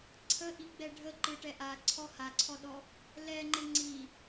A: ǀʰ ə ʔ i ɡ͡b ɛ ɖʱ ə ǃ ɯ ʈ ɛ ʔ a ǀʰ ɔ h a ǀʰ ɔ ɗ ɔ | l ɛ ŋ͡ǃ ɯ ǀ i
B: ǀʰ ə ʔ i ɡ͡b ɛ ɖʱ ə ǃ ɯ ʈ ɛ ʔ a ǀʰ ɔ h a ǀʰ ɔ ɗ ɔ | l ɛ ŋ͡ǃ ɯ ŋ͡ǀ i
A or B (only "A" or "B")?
B